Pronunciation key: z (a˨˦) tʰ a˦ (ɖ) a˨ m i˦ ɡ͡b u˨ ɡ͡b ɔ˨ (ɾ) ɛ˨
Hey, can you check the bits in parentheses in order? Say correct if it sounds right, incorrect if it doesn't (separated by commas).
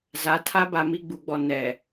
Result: correct, incorrect, incorrect